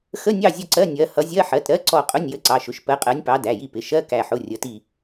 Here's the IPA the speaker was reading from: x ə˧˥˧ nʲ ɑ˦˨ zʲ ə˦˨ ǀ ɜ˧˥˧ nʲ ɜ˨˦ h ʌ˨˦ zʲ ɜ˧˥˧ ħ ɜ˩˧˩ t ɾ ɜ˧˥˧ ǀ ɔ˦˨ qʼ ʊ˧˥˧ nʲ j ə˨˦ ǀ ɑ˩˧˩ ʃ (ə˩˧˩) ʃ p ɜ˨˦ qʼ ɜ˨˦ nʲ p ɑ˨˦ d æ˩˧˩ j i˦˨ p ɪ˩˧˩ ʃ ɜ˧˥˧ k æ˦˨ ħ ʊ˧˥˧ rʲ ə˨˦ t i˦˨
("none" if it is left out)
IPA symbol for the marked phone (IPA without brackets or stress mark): ʊ˩˧˩